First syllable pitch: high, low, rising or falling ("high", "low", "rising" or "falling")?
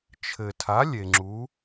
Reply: low